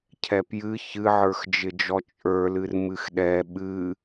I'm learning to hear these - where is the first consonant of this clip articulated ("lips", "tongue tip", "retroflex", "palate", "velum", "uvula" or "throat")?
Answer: palate